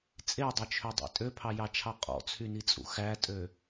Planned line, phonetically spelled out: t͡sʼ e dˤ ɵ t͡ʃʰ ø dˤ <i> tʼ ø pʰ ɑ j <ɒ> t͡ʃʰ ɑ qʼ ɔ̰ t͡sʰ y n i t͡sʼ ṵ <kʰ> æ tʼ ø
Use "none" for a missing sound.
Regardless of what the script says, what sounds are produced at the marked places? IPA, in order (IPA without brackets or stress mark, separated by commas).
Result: ḭ, ɑ, x